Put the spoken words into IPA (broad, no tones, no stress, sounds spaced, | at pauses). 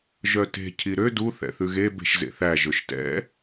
ʒ œ t e̤ cʰ i ɾ ø d u θ ɛ̰ θ ʉ ɣ e b e̤ ʃ z ḛ θ æ ʒ ɵ ʃ t ɛ̰